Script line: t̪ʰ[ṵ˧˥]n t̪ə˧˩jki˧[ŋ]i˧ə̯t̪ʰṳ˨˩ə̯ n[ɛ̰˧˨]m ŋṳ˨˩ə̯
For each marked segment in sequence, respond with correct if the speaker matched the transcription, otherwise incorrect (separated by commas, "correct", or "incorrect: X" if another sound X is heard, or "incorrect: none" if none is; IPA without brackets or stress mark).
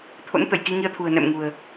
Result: incorrect: o̰˧˥, correct, correct